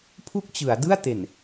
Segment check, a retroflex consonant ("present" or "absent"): absent